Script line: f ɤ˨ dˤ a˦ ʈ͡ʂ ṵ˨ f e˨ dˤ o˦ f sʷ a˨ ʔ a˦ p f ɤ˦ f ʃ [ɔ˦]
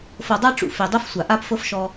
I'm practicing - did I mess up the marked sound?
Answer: no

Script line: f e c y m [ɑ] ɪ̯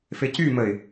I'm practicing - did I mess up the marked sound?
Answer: yes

